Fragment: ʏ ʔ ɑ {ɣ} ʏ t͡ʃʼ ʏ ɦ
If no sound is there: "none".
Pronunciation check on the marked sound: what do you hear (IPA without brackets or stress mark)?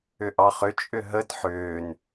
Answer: χ